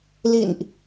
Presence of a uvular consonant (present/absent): absent